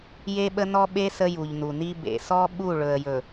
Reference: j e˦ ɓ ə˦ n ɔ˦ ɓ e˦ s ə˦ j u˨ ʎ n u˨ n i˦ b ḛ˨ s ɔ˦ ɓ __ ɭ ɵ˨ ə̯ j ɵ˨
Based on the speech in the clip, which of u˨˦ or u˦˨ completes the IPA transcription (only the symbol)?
u˦˨